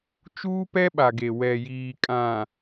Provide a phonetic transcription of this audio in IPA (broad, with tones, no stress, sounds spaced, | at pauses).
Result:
t͡ʃ uː˦ p ɛ˦ ɓ a˨ ɡ e˨ w ɛ˨ j iː˨ kʼ ã˨